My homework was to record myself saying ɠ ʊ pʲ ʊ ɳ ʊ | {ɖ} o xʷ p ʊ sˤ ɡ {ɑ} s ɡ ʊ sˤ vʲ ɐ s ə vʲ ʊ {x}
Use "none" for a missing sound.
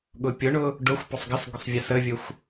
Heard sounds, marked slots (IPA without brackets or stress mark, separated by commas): ɖ, ə, xʷ